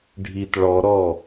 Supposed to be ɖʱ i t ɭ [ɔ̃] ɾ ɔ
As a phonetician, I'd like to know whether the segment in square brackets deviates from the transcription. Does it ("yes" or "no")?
yes